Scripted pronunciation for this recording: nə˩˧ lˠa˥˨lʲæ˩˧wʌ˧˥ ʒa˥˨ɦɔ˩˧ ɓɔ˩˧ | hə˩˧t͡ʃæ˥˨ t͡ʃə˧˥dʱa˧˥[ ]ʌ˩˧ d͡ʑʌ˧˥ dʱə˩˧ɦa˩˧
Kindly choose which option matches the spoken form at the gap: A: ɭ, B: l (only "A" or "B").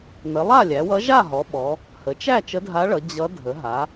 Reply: A